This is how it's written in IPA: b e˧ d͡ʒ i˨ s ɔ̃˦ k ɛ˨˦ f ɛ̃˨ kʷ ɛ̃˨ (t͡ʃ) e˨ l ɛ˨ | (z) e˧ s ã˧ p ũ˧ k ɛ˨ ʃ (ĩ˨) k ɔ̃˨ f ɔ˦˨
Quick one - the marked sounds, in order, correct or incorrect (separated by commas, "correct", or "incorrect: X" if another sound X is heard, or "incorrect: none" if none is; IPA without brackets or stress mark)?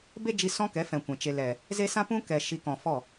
correct, correct, incorrect: i˨